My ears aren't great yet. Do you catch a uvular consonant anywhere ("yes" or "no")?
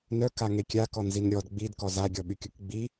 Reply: no